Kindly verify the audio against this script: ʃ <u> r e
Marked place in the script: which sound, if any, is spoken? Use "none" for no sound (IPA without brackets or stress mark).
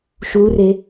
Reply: u